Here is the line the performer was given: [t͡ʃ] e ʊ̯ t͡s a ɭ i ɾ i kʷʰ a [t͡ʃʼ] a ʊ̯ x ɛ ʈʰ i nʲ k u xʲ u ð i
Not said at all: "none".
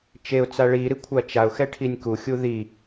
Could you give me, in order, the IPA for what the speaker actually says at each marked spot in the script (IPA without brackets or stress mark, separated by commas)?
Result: t͡ʃ, t͡ʃ